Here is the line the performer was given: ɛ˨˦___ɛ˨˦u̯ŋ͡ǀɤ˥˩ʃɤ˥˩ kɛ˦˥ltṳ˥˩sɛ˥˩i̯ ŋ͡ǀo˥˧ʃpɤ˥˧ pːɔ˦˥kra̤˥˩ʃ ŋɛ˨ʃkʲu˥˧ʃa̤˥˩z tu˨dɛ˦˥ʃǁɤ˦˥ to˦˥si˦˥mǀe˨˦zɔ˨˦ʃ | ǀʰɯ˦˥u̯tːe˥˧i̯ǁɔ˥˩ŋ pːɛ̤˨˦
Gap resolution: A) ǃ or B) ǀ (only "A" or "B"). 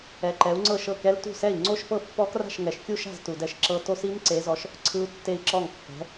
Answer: A